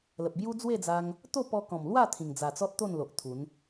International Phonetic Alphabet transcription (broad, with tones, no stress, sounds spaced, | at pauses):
l ə˨ p̚ b j u˦ d͡z w e˥˧ d͡z a˧ ŋ | t̪ o˥˧ p ɔ˧ k ɔ̃˨˩ m l w a˥˧ t̪ʰ ĩ˨˩ ŋ d͡z a˨˩ t͡s ɔ˦ t̚ t̪ o˥˧ n l o˨ ʔ t̪ʰ u˨˦ n